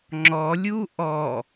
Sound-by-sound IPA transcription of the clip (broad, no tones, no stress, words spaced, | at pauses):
ŋ͡ǁɔlʲu ʔɔ